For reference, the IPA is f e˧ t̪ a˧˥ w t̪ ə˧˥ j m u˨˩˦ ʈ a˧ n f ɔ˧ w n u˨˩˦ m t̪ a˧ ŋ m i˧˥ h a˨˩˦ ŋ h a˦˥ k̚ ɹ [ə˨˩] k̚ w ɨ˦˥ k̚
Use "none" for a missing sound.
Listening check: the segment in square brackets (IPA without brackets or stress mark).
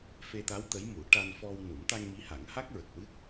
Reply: ə˨˩